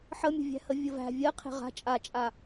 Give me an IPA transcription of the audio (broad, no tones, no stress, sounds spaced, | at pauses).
ħ ə mʲ ə̤ vʲ æ̤ h ə vʲ ə v æ̤ vʲ ɜ qʰ e̤ ʁ a̤ t͡ʃʼ a t͡ʃʼ a